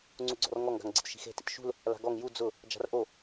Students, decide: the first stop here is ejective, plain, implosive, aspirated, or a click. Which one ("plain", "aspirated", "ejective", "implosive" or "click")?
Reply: click